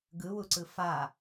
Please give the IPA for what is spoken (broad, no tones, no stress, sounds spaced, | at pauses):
ɡ ɯ w u ǀ ɯ f a